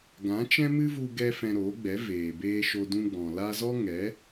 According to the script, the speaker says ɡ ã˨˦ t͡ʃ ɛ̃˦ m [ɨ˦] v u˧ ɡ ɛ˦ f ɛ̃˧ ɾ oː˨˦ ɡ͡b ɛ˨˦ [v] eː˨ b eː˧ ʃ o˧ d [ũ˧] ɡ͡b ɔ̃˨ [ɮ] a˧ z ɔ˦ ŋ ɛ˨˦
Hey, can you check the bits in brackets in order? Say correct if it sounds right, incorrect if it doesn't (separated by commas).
correct, correct, correct, incorrect